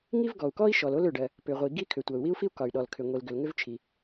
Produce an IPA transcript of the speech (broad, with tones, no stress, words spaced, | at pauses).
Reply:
ŋi˥vɡɔ˩u̯kɔ˥i̯ʃɔ˩l o˥lʏ˩ɖɜ˩ | pʏ˩ʁʷi˩ ɡi˥kʰʏ˩ tʷɜ˩u̯wi˥u̯fi˥u̯ kɒ˩y̯ɗɔ˩l kʰʏ˩ŋʷi˩lɡʏ˩l ŋʏ˥vt͡ʃʰi˩